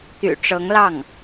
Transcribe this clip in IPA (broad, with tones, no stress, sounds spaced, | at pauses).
t̪ y̰˨˩ ʈ͡ʂ ɤ˧˥ ŋ l ɑ˥˩ ŋ